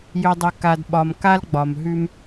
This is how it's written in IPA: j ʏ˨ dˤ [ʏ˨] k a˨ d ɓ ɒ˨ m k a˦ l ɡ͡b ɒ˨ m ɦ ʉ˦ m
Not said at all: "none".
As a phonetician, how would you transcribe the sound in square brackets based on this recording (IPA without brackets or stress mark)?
ʏ˨